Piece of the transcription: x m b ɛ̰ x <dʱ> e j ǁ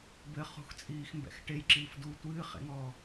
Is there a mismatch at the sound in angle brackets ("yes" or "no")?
yes